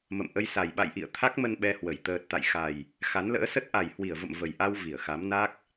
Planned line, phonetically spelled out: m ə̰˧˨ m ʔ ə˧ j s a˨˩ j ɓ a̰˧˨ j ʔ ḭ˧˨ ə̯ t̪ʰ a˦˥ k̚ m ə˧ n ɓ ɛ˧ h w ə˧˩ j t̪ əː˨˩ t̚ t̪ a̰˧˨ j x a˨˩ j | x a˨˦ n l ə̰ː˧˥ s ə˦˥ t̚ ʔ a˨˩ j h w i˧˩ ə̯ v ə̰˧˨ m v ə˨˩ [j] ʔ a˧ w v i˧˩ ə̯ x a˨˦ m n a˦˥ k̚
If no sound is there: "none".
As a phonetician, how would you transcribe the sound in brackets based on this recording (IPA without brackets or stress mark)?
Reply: j